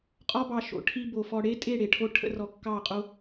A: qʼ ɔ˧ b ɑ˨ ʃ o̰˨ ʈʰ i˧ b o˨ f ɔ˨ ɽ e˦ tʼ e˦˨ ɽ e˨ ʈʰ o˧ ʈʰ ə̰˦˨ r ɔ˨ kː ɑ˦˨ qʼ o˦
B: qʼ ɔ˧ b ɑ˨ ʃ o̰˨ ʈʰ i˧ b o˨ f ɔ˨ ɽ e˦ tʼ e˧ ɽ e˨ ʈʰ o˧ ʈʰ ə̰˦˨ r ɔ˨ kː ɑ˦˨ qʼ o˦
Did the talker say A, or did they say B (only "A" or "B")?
A